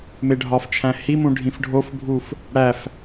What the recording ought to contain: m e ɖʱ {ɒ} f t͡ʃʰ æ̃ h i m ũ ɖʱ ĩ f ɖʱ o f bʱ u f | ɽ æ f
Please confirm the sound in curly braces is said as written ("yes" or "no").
yes